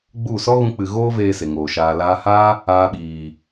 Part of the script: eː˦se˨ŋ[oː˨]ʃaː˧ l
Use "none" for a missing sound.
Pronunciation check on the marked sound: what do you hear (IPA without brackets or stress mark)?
oː˨